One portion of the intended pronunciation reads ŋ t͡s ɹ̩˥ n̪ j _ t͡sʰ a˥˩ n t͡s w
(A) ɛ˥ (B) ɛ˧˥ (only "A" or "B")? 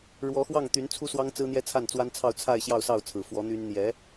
A